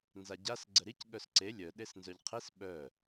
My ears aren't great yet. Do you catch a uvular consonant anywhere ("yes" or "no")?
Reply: yes